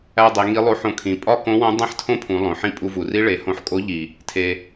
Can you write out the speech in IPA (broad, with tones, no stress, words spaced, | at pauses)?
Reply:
æ˧dˤe˩˧ ŋi˧˥lˠo˧˥ħõ˧kʰĩ˩˧ pʼɒ˥kõ˧˥wõ˧˥ dˤẽ˥ħtʰõ˥pʰũ˩˧ lˠõ˩ħĩ˥ pʼu˧vu˩ri˥ ɭe˩˧hõ˧ħkʼo˧˥ʎi˩ | tʰe˩